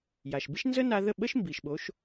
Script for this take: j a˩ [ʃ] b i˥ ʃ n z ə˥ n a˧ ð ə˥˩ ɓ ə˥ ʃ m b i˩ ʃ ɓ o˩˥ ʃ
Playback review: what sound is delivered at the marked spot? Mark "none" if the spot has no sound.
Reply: ʃ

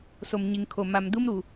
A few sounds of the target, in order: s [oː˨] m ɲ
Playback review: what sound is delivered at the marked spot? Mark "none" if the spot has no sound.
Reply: o˨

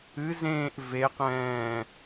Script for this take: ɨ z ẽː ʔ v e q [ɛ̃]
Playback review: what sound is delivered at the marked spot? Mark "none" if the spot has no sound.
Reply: ɛ̃ː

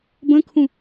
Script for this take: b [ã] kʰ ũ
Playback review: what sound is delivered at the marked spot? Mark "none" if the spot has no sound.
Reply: ə̃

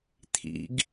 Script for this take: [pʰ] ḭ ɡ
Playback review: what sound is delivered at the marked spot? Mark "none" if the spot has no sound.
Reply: t̪ʰ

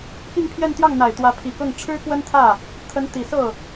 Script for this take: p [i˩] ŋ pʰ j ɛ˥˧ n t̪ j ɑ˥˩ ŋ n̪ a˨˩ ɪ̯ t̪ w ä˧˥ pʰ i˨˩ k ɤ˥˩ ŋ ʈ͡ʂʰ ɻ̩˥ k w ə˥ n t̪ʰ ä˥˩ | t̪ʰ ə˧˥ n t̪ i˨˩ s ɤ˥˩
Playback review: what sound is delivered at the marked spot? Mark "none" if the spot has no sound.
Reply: i˥˧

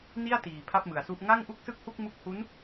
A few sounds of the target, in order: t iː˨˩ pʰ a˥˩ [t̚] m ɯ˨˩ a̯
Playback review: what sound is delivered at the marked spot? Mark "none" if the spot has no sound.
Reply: p̚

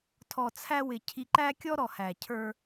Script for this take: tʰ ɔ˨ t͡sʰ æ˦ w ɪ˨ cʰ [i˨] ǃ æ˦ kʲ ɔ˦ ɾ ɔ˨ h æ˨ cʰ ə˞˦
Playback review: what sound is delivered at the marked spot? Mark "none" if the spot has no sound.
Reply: i˨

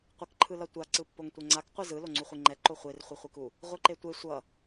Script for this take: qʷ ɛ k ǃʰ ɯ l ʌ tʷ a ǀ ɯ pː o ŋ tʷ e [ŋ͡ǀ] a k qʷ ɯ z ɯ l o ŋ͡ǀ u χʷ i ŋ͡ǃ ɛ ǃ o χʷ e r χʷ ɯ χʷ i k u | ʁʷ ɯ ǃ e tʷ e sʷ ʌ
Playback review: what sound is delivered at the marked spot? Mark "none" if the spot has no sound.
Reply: ŋ͡ǀ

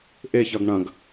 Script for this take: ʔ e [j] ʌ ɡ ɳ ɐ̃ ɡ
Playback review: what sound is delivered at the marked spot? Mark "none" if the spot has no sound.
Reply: ç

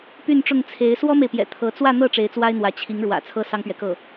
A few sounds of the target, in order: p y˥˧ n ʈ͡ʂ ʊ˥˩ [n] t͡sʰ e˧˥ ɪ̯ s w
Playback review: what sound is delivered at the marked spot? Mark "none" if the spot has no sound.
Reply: ŋ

